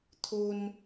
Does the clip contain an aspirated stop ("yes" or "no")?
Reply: yes